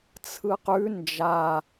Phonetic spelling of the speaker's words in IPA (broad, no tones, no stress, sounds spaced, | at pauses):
t͡sʰ ɯ q ʉ n d͡ʒ a